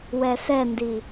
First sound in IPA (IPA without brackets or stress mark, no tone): w